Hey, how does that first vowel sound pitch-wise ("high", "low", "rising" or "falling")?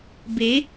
rising